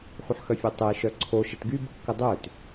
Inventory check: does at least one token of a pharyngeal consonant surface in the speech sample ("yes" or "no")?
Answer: yes